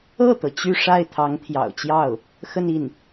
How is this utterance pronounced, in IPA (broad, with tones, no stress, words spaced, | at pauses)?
ɤ˥˩t̪ɤ˩ t͡ɕy˥˧ʂa˥˩ɪ̯t̪ʰɑ˧˥ŋ t̪ʰjɑ̰˨˩ʊ̯t͡ɕjɑ˥˩ʊ̯ | xə˥˧ni˥˩n